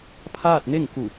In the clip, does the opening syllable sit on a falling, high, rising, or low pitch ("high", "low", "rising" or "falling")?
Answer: falling